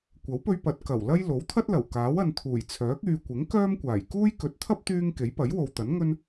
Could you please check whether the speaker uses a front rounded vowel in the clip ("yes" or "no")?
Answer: yes